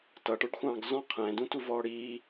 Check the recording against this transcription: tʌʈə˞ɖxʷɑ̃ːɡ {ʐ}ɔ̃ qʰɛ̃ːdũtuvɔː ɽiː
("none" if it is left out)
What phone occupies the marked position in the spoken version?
z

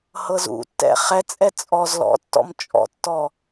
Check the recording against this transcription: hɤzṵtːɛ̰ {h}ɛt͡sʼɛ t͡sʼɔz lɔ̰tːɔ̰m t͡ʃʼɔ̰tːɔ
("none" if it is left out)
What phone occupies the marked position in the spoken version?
χ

